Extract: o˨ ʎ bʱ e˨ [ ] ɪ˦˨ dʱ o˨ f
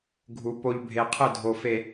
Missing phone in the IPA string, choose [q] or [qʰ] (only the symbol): qʰ